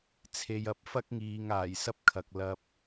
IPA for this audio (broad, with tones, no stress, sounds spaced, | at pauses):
t͡sʰ e˨ j ɐ˨˥ p̚ f ɐ˥ k̚ ŋ iː˨ ŋ aː˨˩ j s ɐ˥ p̚ kʰ ɐ˨ k̚ l ɐ˧ p̚